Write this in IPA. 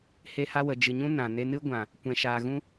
h e˦ h a˦ w ə˨ d͡ʒ ɨ˨ ɲ ũ˦ n ã˨ n e˧ n ɨ˦ ɡʷ ã˨ | kʷ ɛ̃˨ ʃ aː˨ ɣ ũ˦

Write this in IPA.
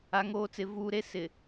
a˦ ŋ oː˦ t͡s ɪ˦ v uː˦ ɾ e˦ s ɪ˨

